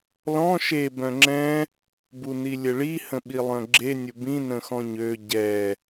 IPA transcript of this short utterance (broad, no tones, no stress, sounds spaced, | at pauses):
l ɔ̃ ʃ e b œ̃ ŋ͡ǁ ɛ̃ | b u n i lʲ ə ɭ i h ə̃ ɓ i lˠ œ̃ ɡ͡ǁ e nʲ ʊ b ĩ n ə̃ x ɔ̃ ɲ ø ɟ ɛ